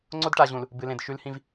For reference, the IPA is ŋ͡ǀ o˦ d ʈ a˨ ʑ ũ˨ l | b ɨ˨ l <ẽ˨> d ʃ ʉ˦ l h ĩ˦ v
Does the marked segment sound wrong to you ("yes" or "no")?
no